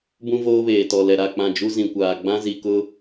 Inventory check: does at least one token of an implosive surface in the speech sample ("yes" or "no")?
no